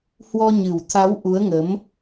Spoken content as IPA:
h w ɔ˧ ɲ ɨ˨˩ w t̪ʰ a˨˦ w ʔ u˨˦ ə̯ ŋ ə˨˦ m

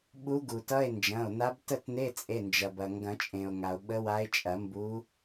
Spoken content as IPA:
ɓ u˧˥ ɡ u˩ t ʌ˧˥˧ e̯ n d͡ʒ ɐ̃˩˧˩ o̯ n a˧˥ b t ə˥˧ t n e˧˥˧ t͡sʼ e˩˧˩ n d͡ʒ ɐ˩ b ɐ˩ ŋ ɡ ɐ̃˨˩˦ t͡ʃʼ ẽ˩ o̯ ŋ a˩ o̯ ɓ ə˧˥ w a˧˥ e̯ t͡ʃʼ ɐ˨˩˦ m b u˧˥

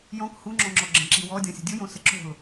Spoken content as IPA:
j ɔ̃ k h u ŋ͡ǁ ɔ̃ ŋ͡ǁ ɔ ɡ͡ǁ ə̃ ǁ i w ɔ dʲ ɔ̃ sʲ ə̤ dʲ u j õ s ə ǁ o̤ l

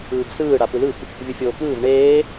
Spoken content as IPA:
ɯː b s ɯː ɽ a p ɯ l ɯ p | vʲ ɯ fʲ oː k ɯː v ɳ eː

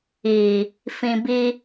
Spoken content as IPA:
iː˨ | f ĩ˨ b i˧

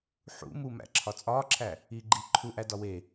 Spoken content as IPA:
ħ ṵ m u m æ̰ ǁʰ ɒ t͡sʼ ɒː ǁʰ æ | iː ɡ͡ǃ iː ǃʰ u ʔ æ d ɒ w e

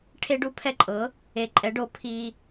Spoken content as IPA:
ʈʰ e˦ ɖ u˦ pʰ ɛ˦ ǃʼ ɤ˩˥ | e˨ ǃʼ ɛ˩˥ ɖ o˩˥ pʰ i˨

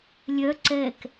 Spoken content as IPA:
lʲ œ ǀ ɛ k

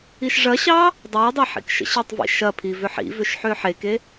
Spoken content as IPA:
i ʃ ʐ ɐ ɕ ɑ | dˤ əː dˤ a ħ ḭ k ʃ ə̰ ɕ i tˤ v ḭ ʃ ɐ pʰ i v ʏ ħ ḭ v ʏ ʃ ħ ʏː ħ e k e

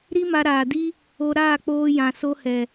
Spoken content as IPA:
ɾ i˦ m a˧ ɾ aː˨ d i˦ | o˧ ɾ aː˦˨ k͡p oː˧ j ã˨ s o˧ h ɛ˨

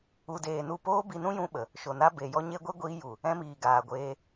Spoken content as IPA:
u˧ d eː˧ n u˦˨ p oː˦ b i˧ n ũ˦ j ũ˧ ɓ ə˨ | ʃ o˨ n a˧ b e˨ j ɔ˧ ɲ e˦ ɡʷ e˦ ɡʷ iː˧ j u˨ | ɛ̃˧ m iː˨ ɡ aː˨ ɡʷ eː˧

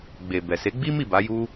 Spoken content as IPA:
ɡ͡b e˨ b ɛ˨ s e˨˦ ɡ͡b i˦ m i˦˨ b a˨˦ j u˦

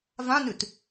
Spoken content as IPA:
v ã n ʉ t

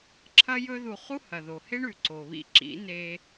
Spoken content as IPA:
ǁʰ ɐ˦ j ɵ˦ ð u˧ χ u˦ h ɐ˨ ð o˨ h e˦ ɳ ʉ˨ ǀ o˨ β ḭ˧ ǁ ḭ˨˦ n e˧

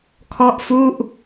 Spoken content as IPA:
kʰ ɔ˥˩ ʔ f u˥˩ ʔ

